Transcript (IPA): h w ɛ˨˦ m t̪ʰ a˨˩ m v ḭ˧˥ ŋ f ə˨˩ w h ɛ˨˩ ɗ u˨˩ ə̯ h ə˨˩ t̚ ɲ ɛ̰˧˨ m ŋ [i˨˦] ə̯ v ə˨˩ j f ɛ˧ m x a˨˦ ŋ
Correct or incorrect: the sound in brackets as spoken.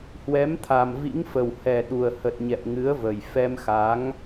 incorrect: ɨ˨˦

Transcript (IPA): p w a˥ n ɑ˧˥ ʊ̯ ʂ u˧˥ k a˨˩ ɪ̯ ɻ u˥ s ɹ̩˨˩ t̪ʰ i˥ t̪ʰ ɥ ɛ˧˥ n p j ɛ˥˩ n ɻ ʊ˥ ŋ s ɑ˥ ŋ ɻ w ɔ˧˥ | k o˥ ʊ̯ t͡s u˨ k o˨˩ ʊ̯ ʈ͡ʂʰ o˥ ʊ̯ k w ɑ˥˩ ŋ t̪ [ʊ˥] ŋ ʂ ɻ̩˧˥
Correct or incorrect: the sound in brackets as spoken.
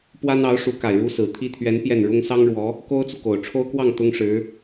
correct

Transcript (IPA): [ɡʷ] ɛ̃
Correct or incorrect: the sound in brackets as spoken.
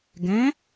incorrect: ɡ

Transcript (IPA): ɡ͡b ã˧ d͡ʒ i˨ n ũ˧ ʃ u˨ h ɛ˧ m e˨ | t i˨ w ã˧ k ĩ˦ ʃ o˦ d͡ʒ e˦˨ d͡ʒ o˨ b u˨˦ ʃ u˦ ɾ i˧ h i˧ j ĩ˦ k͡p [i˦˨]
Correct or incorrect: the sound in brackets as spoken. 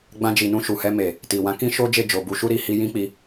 incorrect: i˧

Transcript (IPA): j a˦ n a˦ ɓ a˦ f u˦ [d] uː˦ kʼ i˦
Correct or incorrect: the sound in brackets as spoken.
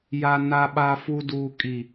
correct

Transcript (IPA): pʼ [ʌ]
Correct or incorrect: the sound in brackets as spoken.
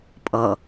correct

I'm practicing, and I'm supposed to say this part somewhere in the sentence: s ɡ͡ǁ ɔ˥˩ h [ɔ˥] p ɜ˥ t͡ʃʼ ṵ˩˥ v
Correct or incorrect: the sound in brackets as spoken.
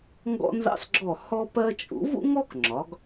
correct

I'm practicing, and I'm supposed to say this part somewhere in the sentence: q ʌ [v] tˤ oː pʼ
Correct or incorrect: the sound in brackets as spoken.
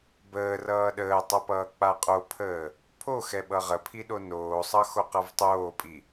correct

